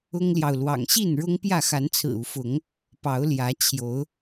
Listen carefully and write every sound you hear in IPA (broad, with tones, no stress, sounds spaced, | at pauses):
ʊ˦ ŋ l j ɑ˨ ʊ̯ l w ɑ̰˨˩ ŋ ɕ i˥˨ n ɻ ʊ˦ ŋ p j ä˥˨ x a˨˦ n t͡sʰ ɹ̩˨˩ u˨˦ f ʊ˨˦ ŋ | p ɑ˨˦ ʊ̯ l j ä˨˦ t͡ɕʰ j o˨˦ ʊ̯